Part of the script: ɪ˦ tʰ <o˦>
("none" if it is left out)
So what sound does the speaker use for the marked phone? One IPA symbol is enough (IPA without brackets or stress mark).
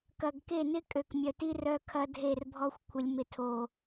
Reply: o˦